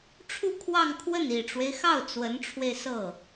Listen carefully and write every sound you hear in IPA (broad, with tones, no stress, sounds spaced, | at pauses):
ʈ͡ʂʰ u˥˧ kʰ w ɑ˥˧ ŋ kʰ w ə˥˩ n i˨˩ ʈ͡ʂ w e˦ ɪ̯ x ɑ˥˩ ʊ̯ t͡s w ə˧˥ n ʈ͡ʂʰ w e˧ ɪ̯ s ɤ˥˩